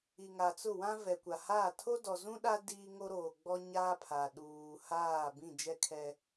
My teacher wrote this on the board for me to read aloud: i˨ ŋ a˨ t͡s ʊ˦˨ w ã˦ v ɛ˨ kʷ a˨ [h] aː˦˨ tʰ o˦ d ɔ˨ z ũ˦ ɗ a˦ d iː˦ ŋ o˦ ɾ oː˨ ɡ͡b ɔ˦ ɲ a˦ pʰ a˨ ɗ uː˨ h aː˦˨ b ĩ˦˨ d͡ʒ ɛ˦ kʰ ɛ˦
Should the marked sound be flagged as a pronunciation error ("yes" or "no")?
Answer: no